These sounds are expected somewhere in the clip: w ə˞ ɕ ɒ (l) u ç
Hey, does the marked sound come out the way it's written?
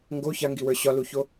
yes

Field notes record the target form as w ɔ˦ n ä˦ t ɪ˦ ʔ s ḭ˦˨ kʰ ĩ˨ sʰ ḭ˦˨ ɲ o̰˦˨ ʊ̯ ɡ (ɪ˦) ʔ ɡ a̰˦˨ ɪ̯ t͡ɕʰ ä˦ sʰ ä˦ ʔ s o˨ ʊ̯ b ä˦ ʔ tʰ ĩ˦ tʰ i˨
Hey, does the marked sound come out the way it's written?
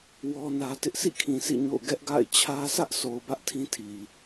no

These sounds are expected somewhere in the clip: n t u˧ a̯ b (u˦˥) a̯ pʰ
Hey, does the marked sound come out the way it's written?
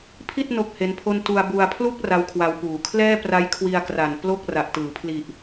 no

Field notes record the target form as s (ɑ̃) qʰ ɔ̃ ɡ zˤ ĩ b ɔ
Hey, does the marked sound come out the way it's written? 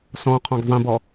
no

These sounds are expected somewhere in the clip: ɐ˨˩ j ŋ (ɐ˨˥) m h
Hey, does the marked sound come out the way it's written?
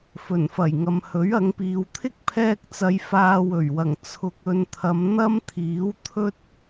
no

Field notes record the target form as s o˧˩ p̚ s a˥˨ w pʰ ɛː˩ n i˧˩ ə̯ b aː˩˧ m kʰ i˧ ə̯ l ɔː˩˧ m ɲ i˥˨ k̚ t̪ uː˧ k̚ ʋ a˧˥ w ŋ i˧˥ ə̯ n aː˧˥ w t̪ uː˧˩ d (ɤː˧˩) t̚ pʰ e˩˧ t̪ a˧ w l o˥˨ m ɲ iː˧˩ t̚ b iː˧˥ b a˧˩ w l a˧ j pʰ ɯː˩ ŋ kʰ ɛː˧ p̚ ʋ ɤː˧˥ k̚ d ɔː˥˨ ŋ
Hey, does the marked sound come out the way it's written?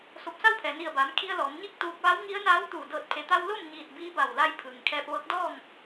yes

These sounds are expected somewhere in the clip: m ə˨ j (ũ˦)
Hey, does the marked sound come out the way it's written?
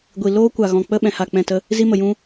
yes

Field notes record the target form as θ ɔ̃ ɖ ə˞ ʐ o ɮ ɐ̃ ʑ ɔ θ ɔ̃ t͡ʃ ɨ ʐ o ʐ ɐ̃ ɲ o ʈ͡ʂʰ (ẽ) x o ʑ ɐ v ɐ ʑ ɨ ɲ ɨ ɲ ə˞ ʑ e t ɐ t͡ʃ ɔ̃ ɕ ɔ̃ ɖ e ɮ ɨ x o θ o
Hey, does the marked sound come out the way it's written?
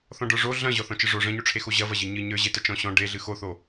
no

